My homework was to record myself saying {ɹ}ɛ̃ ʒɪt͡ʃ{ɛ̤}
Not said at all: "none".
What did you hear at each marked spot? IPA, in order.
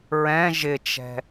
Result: ɹ, ɛ̤

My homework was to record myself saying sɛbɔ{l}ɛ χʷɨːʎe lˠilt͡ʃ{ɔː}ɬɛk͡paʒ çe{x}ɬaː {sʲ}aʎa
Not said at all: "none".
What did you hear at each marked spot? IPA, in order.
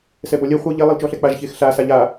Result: lʲ, ɔː, x, s

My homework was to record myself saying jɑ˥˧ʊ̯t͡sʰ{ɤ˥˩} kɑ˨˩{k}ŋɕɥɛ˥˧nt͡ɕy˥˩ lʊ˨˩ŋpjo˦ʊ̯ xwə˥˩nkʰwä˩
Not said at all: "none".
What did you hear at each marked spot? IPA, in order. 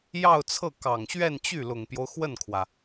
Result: ɤ˥˩, none

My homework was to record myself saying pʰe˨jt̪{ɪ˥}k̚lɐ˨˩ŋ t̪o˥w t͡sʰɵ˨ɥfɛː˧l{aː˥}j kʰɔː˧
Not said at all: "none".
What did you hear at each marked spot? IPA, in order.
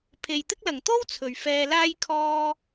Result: ɪ˥, aː˥

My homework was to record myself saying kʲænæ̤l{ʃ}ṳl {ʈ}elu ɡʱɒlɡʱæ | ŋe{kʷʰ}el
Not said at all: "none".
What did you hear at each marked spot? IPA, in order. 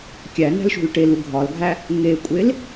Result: ʃ, ʈ, kʷʼ

